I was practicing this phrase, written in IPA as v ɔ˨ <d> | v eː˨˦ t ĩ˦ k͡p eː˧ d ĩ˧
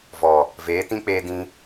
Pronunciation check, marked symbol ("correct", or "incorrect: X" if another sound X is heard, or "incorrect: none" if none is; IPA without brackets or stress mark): incorrect: none